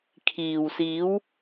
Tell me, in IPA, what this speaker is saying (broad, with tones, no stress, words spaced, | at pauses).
kʰiː˨w siː˨˧w